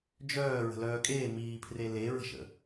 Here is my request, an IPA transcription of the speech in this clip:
d͡ʒœː ɹə̤lœːkʼeː miːpʰre leɹə̤ʃə̰

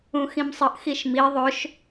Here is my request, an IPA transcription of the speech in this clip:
ũxĩmsˤəʔ xiʃmi ðˤɵʃ

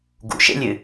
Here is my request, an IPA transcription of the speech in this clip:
ɡṵʃḛlʲɨ

